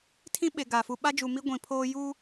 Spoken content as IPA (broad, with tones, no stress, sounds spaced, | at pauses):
tʰ ĩ˦ ɓ e˨ ɡ a˨ f u˨ ɓ a˦ d͡ʒ u˨ m i˦ ɡʷ ĩ˨ pʰ oː˦ j u˦